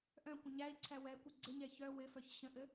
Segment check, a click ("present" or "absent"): present